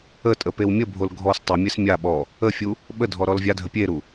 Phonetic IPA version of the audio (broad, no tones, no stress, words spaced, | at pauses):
ətʼə pewmʲəbʱol ɡʱɔs tˤemʲes mʲa ɓɔ | əfʲu | ɓədʱɔ ɾɔlvʲadʱə pʲeɾu